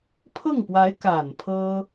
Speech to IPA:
pʰ ɤ˥˩ ŋ p w a˧˥ ɪ̯ k a˨˩ n pʰ ɤ˥

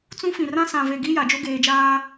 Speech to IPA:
t͡s ũ˦ f ĩ˨ r ã˦ s ã˨ v e˨ ɡ i˦ j a˨ d͡ʒ o˦ ɡ eː˨ d͡ʒ aː˦

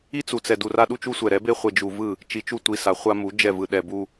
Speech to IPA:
i˦ t͡s u˨ t͡s ɛ˨ d u˨ r a˦ ɗ u˦ t͡ʃ u˦ sʷ ɛ˨ ɾ ɛ˨˦ b e˦ χʷ e˨ d͡ʒ u˨ v ɯ˦˨ | t͡ʃ i˨ t͡ʃ u˦˨ tʷ i˨ s a˨ χʷ a˦ m u˨˦ d͡ʒ ɛ˦˨ v ɯ˨ ɗ ɛ˨ b u˦

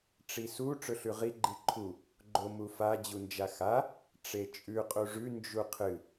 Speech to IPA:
ʈ͡ʂ i s u ʈ͡ʂ ɵ ɬ ʉ ʁ i ɡ͡ǃ i ǃʰ u | ɡ͡ǃ o m u f a d͡ʑ u n d͡ʒ a x a | ʈ͡ʂ e t͡ʃʼ ʉ qʼ u ʐ ʉ n d͡ʒ u qʰ ɨ

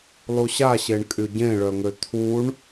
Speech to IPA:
lˠ u ɕ a ɕ e ɳ kʼ y ɟ ẽ ɭ œ ŋ ø t̪ʰ u ɳ

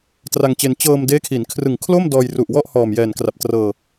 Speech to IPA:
t r a˧ ŋ t͡ɕ e˧ n t͡ɕ ɤː˧ m d eː˦˥ kʰ i˩˦ n kʰ r ɯ˨˩ ŋ kʰ l o˥˩ m d ɔː˧ j r u˨˩ ʔ w ɔ˥˩ ʔ h ɔː˨˩ m j ɛː˨˩ n k r a˨˩ p̚ t r ɤː˧

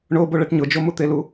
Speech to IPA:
ɳ o b o ɭ ɛ ʈ ɲ ʊ d͡ʒ o m u t̪ e l u

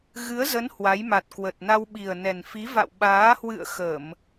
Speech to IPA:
ɣ ɨ˨˦ ə̯ z ə˨˦ n h w a˨˦ j m a˨˩ t̚ k w ə˨˩ t̚ n a˧ w ɓ i˨˩ ə̯ n ɛ˨˩ n f i˨˦ v a̰˧˨ w ɓ aː˨˦ h w ɨ̰˧˨ ə̯ x ə˧˩˨ m

